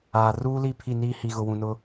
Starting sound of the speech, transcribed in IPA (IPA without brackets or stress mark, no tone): aː